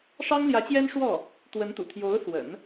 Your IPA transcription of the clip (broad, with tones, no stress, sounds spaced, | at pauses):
ʂ ɑ˥ ŋ l j ä˧˥ t͡ɕ j ɛ˥ n ʂ w ɔ˥˩ | t̪ w ə˧˥ n t̪ ṵ˨˩ t̪ʰ j o˧˥ ʊ̯ s w ə̰˨˩˦ n